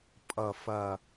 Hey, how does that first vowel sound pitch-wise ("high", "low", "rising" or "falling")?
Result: low